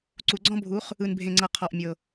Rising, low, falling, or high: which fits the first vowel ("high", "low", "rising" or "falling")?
low